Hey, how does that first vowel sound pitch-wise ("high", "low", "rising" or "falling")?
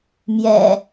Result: low